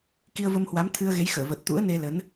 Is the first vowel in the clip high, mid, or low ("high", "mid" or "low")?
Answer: high